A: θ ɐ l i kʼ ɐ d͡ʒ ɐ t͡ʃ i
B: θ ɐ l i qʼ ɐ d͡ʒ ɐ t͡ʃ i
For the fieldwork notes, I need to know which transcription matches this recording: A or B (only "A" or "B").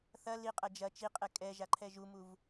B